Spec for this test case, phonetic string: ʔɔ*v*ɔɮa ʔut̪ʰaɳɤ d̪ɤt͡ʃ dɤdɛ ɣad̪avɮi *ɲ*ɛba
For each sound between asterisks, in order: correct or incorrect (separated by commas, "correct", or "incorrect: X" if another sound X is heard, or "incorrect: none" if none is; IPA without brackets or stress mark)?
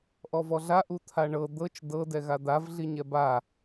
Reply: correct, correct